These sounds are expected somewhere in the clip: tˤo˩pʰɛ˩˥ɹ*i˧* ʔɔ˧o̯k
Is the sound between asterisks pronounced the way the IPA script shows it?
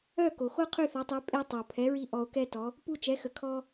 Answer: yes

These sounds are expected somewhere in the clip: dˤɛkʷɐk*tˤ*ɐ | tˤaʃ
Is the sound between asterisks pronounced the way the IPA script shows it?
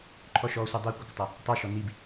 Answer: yes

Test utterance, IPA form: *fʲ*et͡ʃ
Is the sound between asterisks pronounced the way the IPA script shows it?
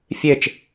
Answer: yes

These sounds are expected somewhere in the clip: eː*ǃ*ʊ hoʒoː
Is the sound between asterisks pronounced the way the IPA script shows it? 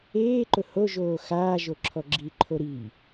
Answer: yes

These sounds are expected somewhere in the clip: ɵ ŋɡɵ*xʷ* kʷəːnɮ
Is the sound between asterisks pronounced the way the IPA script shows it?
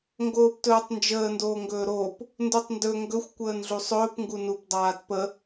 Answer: yes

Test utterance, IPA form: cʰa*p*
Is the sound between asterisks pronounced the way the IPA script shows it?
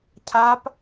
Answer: yes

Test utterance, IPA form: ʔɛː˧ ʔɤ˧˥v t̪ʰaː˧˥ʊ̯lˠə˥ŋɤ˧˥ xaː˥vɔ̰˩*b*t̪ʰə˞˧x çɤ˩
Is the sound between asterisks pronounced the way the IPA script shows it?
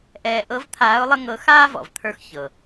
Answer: no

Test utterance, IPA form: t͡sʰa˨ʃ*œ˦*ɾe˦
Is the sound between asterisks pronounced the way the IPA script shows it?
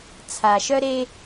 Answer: yes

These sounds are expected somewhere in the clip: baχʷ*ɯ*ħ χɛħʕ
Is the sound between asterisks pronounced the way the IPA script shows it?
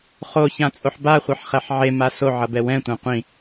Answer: yes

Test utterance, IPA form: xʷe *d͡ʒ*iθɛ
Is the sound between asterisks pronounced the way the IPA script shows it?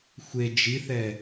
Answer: yes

